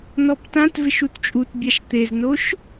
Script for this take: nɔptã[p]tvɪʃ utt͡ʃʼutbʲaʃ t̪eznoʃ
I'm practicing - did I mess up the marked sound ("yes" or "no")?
yes